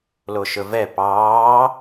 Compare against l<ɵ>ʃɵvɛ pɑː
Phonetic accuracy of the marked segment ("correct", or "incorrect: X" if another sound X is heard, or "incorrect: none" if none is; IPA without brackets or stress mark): incorrect: o